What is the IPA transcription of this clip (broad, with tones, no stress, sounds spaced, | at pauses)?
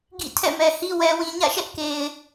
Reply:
ɡ ḭ˦˨ tʰ ɛ̰˦˨ m ɛ˨ h i˦ w ɛ˦ w ĩ˦ ɲ ä̰˦˨ ʃ ɛ˦ ʔ k e˨ ɪ̯